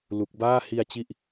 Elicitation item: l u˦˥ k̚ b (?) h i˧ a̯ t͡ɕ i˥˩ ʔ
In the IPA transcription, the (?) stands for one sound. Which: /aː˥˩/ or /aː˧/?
aː˥˩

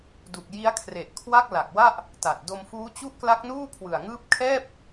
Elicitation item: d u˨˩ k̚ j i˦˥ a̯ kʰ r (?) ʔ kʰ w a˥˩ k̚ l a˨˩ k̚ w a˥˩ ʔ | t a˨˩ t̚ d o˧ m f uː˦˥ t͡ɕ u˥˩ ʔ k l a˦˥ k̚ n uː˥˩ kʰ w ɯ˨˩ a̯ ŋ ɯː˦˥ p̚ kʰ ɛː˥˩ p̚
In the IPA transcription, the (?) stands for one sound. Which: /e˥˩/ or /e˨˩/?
e˨˩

